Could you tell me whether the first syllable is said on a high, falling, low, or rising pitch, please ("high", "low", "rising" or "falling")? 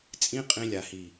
high